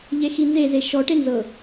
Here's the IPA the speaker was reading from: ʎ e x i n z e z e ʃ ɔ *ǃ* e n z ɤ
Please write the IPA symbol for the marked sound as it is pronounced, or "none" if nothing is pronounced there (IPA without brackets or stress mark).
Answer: ʈ